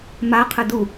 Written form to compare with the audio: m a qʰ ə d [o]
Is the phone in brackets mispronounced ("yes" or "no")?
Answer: yes